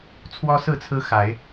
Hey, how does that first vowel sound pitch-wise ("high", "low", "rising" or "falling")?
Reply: high